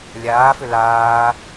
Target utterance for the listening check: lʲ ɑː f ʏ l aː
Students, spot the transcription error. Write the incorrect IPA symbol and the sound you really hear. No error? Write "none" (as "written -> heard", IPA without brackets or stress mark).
ɑː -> aː